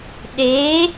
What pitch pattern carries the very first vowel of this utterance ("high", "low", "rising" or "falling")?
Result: rising